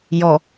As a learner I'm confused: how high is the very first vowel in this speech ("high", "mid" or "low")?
mid